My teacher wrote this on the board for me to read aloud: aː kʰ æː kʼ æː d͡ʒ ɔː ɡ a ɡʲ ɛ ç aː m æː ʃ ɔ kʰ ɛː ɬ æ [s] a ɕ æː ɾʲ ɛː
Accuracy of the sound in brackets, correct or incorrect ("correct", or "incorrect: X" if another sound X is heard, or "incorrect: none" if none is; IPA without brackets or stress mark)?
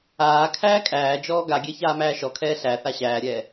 incorrect: θ